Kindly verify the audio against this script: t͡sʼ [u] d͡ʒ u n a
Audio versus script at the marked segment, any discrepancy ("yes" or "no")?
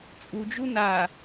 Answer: no